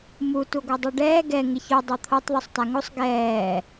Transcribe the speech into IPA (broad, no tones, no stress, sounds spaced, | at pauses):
m u t u ɡʷ ɛ dˤ o ɖ ɛː ɡ ɛ ŋ ɪ ç o dˤ o t̪ʰ o tˤ ðˤ u sˤ t a ŋ o sˤ ɡ ɛː